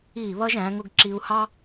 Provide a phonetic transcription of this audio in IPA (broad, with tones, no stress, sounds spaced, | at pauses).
iː˧˩ β ʌ˧ ʒ æ̃˩˧ ŋ ʊ˧ ɡ ǁ i˧ u̯ h ɑ˥